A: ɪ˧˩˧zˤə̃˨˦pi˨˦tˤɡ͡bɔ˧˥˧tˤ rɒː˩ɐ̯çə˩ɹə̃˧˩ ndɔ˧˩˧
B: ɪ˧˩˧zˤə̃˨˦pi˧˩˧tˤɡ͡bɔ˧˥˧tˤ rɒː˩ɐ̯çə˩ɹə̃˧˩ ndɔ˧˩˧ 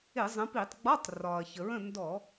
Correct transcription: B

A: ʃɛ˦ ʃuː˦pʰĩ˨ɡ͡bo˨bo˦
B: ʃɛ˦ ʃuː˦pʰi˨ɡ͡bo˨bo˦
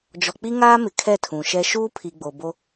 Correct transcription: B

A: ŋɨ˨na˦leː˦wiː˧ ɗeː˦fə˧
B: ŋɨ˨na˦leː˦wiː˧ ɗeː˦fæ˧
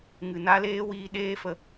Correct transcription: A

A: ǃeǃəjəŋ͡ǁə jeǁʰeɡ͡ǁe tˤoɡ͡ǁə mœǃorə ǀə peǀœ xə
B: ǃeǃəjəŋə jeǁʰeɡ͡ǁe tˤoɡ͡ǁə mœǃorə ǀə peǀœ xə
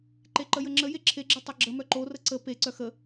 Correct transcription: A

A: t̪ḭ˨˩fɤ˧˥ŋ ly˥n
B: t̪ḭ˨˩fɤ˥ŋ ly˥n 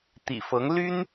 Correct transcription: A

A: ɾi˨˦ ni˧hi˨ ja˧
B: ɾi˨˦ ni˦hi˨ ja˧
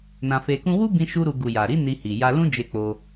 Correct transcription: A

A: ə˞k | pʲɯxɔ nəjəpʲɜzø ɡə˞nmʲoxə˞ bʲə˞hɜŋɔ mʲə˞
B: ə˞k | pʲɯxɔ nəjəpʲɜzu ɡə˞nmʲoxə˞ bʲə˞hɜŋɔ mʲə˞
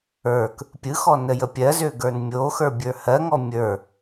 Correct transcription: A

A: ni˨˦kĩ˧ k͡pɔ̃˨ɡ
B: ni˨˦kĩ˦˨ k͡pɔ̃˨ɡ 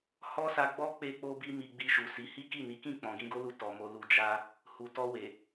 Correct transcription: B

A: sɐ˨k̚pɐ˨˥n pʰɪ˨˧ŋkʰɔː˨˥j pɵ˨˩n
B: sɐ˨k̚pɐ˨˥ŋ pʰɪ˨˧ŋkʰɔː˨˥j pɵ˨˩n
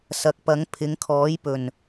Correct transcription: B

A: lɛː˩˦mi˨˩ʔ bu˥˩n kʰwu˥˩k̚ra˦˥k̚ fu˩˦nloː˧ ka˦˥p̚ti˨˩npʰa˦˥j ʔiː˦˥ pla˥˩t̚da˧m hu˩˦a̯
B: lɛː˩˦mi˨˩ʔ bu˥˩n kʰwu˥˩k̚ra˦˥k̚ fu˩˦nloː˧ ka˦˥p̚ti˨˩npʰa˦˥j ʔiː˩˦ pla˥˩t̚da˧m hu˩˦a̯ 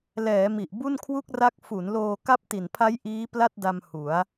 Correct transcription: A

